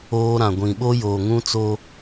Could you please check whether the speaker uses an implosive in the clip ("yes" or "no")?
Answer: yes